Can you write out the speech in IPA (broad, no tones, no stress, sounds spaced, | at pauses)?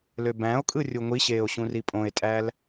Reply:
l ø b æ̃ o̯ kʼ ɯ rʲ u ŋʷ i ɕ eː o̯ ɕ ũ r i pʼ õ e̯ tʼ æː l